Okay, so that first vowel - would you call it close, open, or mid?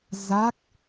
open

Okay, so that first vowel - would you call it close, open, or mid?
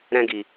mid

